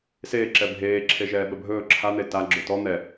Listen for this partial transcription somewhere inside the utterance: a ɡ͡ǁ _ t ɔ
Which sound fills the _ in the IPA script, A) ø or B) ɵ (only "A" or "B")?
B